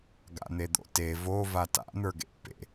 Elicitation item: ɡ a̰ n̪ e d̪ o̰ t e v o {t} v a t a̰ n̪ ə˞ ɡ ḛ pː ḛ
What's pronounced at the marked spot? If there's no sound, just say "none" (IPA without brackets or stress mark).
none